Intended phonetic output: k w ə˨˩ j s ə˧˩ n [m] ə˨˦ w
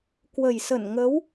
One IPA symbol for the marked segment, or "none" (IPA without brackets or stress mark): ŋ